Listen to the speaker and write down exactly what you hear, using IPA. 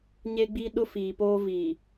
ɲ e˦ ɡ͡b i˦ ɗ ʊ˦ f iː˨ p oː˦ v i˨

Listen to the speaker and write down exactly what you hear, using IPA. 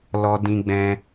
l ɔ˧ d ĩ˧ ɡ͡b ɛ̃˧

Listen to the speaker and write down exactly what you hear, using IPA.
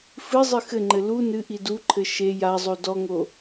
f ɨ zˤ ɨ x ɘ ŋ͡ǃ ɘ l u n ɨ ʔ i d u ǃʰ ɘ ʃ e j a zˤ o d ɔ ŋ o

